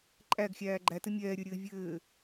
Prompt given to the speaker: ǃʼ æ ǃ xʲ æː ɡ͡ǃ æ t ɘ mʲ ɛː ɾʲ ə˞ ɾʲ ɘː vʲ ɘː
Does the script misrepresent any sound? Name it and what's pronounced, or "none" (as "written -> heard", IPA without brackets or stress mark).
ǃ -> ɡ